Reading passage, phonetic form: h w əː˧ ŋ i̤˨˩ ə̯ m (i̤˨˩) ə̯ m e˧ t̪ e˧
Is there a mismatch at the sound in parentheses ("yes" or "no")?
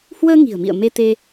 yes